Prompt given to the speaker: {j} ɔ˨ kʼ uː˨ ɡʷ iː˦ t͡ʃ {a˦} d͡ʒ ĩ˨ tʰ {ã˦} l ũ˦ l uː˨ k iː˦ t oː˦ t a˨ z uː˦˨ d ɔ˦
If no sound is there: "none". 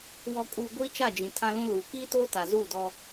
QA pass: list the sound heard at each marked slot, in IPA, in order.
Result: w, a˦˨, ã˦

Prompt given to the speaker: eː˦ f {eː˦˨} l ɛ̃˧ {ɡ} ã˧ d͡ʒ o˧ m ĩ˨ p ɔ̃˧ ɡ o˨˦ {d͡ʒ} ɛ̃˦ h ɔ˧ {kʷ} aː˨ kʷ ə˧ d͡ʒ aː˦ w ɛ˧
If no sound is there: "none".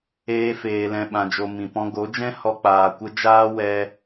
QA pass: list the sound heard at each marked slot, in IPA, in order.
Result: eː˧, ɓ, d͡ʒ, k͡p

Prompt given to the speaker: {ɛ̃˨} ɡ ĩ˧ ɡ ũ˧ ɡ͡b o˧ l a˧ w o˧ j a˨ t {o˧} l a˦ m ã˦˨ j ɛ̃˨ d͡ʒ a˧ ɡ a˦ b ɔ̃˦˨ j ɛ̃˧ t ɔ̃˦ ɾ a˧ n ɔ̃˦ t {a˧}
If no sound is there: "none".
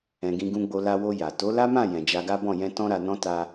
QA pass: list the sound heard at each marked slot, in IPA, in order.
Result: ɛ̃˨, o˨˦, a˦

